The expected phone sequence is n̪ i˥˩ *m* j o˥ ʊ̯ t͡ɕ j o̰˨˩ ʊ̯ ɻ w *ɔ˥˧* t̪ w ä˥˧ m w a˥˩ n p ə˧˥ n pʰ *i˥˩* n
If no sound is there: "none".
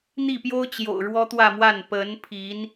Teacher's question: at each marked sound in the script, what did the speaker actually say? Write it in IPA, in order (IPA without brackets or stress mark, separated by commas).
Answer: p, ɔ˥, i˧˥